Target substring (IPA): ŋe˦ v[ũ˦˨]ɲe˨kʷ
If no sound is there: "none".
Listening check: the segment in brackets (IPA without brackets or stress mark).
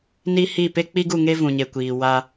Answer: ũ˨